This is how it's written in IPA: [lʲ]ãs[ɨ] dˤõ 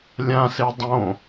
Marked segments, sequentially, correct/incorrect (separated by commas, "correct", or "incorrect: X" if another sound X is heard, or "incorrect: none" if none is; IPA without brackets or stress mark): correct, incorrect: e